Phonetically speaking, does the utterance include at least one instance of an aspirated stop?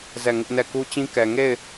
no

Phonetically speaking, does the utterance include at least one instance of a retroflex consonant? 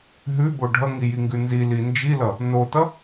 yes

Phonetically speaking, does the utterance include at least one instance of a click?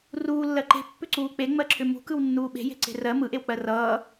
yes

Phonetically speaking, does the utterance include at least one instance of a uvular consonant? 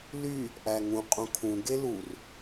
yes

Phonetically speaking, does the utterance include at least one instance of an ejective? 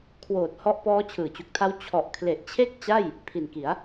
no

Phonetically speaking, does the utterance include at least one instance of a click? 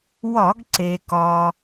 yes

